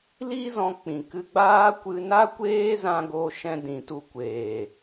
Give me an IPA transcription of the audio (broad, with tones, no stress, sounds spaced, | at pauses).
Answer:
l i˦ z ɔ̃˧ k͡p ĩ˨ k ɨ˧ ɡ͡b aː˦ kʷ ɨ˧ n a˦ kʷ eː˦ z ã˧ ɡ o˧ ʃ ɛ̃˧ d ĩ˨ t u˧ kʷ eː˨